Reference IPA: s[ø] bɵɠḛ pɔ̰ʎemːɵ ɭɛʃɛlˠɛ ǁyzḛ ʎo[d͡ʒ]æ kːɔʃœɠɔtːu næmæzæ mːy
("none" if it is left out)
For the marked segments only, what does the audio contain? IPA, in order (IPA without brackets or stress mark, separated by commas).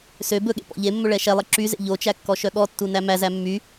ø, t͡ʃ